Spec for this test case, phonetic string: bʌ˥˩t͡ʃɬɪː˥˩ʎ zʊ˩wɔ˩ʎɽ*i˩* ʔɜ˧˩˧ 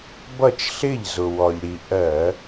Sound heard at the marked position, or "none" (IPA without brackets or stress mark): i˩